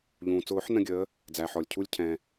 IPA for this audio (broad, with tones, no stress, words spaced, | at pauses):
ʎũː˩t͡sʊː˨˩˦ħ nə̃˦˨ɡʲəː˨˦ | d͡zæ˩ ħɔ˩lʲcʰu˦˨lʲ cʰɛ̃˩